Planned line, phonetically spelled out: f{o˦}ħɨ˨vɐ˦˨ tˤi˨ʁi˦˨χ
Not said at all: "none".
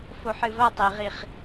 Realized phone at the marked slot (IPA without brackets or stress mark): o˨